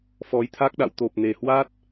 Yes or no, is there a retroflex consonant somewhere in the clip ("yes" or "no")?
no